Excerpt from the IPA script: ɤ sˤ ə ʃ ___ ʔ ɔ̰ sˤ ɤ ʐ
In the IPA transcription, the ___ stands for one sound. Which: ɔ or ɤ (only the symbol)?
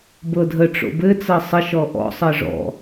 ɔ